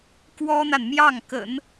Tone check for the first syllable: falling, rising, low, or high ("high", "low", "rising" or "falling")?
high